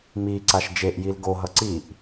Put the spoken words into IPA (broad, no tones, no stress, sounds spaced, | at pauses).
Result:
m i ǀ a ʃ d͡ʒ e ʔ j i l ɡ o ɦ ʌ ǀ i ʔ